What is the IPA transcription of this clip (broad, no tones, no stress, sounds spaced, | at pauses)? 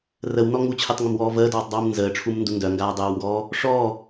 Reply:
r ə w n ɔ ŋ u t͡ɕʰ e tˤ ŋ ə m w ɔː v əː d ɔː tˤ dˤ uː m n z əː ʈ͡ʂʰ u m n d u n d œ ŋ ɡ aː dˤ əː w ŋ ɡ ɔː | ʂ ɔː